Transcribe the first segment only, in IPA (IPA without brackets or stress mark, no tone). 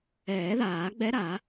ɛː